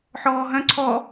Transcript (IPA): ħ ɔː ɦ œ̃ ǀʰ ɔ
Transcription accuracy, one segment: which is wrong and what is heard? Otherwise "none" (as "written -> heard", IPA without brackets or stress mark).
none